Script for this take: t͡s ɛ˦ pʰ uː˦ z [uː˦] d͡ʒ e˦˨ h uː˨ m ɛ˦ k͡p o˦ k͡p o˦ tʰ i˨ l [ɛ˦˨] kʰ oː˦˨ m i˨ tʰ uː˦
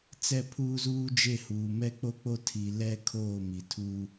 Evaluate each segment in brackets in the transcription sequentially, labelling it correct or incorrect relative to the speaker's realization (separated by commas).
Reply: correct, incorrect